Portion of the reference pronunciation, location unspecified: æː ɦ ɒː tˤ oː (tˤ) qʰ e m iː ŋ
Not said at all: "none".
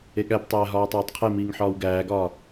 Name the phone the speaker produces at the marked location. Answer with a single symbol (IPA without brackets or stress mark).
tˤ